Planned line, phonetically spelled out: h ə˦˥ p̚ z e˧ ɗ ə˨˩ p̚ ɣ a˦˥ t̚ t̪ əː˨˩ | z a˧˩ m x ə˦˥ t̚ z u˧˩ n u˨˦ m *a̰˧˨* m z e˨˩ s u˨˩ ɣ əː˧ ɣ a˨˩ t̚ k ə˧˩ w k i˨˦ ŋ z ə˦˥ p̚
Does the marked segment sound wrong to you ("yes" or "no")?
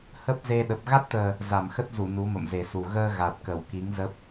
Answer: yes